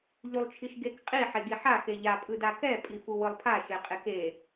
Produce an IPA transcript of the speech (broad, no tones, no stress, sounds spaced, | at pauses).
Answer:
ʎ u lˠ t͡ʃʰ i ʃ ɡ e k qʼ i ħ e ɡ i ħ a x e ʎ a pʼ ɯ d a k ɛ pʼ i f u w ɯ lˠ pʰ a ʃ e qʼ e k e